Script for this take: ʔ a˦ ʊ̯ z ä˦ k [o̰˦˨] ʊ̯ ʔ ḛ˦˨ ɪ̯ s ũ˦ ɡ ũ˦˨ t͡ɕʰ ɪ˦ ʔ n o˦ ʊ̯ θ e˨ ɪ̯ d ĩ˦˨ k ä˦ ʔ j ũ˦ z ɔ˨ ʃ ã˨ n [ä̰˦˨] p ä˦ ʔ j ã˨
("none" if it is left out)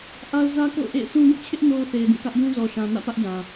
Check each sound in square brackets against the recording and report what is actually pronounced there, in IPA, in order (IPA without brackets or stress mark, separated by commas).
o̰˦˨, ä̰˦˨